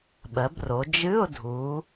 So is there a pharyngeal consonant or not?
no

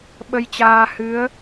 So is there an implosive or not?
yes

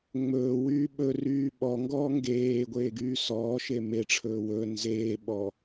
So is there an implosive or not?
yes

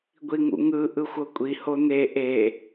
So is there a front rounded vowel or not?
no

